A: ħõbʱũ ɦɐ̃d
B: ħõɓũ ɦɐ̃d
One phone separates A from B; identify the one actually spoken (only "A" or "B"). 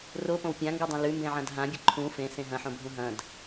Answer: A